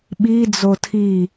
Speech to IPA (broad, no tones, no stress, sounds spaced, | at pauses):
ɓ i d͡z o tʰ i